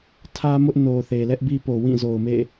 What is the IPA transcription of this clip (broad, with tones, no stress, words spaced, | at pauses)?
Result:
tʰä˦mʊ˦ʔno˨ θe˨lɛ˦ʔbi˦po˨ wĩ˦˨zo˨ʊ̯mḛ˦˨